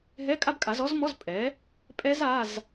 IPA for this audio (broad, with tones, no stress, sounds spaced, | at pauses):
ɦ ɛ˧˥˧ kʼ a˦˥ b kʼ a˩˥ z ɔ˦˥ z m ɔ˧˥˧ z pʼ ɛ˩˥ | pʼ ɛ˦˥ z a˧˥˧ z